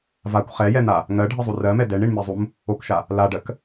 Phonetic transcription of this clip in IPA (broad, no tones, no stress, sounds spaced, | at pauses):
v a kʷ χ ɛ j ɛ n̪ a | ŋ ɜ ɖʱ i zˤ u r ɜ m ɛ d ɛ ɳ i ɳ m i zˤ u m | o k ʃ a | l a ɖ ɜ k